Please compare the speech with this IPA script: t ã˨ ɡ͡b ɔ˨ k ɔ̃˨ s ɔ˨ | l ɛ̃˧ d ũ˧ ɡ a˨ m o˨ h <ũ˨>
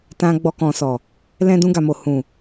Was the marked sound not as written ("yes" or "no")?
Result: no